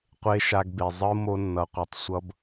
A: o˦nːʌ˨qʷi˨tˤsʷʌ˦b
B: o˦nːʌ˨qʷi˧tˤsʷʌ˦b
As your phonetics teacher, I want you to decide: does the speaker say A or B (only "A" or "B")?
A